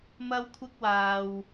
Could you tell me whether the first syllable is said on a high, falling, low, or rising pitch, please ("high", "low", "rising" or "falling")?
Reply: high